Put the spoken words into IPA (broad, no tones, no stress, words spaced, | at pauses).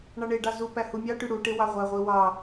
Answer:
ɳɑɳeɖɑ zu pæhumʲɑʈy ɽuʈe wɑʁʷæʁʷi wɑ